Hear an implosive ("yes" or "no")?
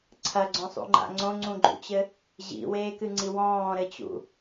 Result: no